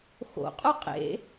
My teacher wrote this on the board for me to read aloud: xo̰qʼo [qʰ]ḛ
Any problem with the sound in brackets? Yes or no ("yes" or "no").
yes